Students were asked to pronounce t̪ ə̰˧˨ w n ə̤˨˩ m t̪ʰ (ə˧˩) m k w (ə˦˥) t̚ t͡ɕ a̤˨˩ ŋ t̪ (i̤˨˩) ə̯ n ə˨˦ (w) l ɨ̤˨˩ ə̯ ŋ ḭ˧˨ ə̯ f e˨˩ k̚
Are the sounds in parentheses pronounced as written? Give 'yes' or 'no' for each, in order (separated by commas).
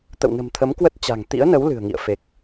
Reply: no, yes, no, yes